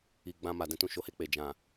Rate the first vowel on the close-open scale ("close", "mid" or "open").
close